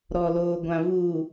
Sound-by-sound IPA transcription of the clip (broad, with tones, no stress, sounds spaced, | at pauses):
ɾ ɔ˨ l oː˨ ɡʷ ã˨ v uː˨